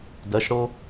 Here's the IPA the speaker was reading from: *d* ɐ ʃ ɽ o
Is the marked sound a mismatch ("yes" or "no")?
no